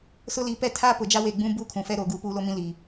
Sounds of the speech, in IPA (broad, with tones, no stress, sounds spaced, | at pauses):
s ʊ˦ l i˨˦ p ɛ˦ tʰ a˦ p ʊ˨ d͡ʒ a˦ w eː˨ ɡ͡b ũ˦ b uː˦ kʰ ũ˨ f ɛ˦ ɾ oː˨ ɡ uː˦ p uː˦ l o˦ m ĩ˦ l i˨